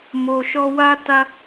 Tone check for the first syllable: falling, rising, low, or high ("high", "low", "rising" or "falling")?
low